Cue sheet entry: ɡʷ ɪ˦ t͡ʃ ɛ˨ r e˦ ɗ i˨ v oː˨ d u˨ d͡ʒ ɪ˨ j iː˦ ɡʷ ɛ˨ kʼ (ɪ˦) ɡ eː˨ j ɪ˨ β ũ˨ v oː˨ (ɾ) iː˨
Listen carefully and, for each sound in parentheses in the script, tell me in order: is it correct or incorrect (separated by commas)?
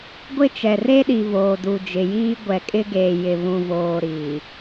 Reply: correct, correct